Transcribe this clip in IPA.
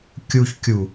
kʲ u ç kʲ u

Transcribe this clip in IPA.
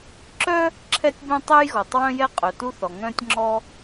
ǁ œ˥ | ǁʰ ɛ˥ tʲ b œ̃˥ tˤ ɛ˥ j ɣ ɔ˩ tˤ w œ̃˥ j ɛ˥ qʼ œ˩ t u˥ θ ɔ˩ ŋ œ̃˥ tʲ ŋ͡ǁ ɔ˥

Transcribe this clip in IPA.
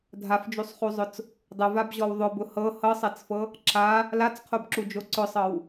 dʱ a f d͡ʒ u sˤ χ u zˤ ʊ t͡s | dˤ ʊ v a b ʑ ɔ w ðˤ ʊ b ʊ h ɤ h ɤ sˤ ɛ t͡s f ɤ | ǁ a | l a t͡s qʰ o b ǁ u d͡ʒ o ǀ ʊ sˤ ɤ w

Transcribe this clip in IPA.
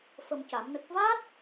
f ə˧ m c a˨˩˦ m n ə˦˥ k̚ v a˦˥ t̚

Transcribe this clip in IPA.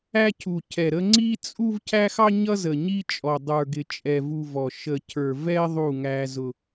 æ˦ cʰ u˨ cʰ ɛ˨ ɾ ə˦ ŋ͡ǀ i˦ t͡sʼ u˦ v cʰ æ˦ x ɑ˦ ɲ ʌ˦ z ə˨ ɲ i˦ t͡ʃʼ ɔ˨ dˤ ə˞˨ ɡ ɪ˨ t͡ʃʼ ɛ˨ v u˨ v ɔ˨ ʃ ə˨ cʰ ə˞˨ v ɛ˦ ðˤ u˦˨ ŋ æ˦ z ʊ˦

